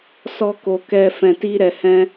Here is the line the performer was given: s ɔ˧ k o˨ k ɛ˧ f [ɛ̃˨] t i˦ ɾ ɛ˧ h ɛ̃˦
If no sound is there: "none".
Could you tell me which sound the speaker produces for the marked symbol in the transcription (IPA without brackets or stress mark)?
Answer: ɛ̃˧